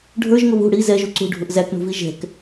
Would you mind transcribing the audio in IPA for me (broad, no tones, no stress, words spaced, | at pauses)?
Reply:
ɖʱə˞ʒŋʊ βṳ ɽi zɛʒu ǀṳɖʱʊʔ zækɳṳvi ʒɛ̤k